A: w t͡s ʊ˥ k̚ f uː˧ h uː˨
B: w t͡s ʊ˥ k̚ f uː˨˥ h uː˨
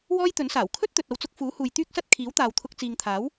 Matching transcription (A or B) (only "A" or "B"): B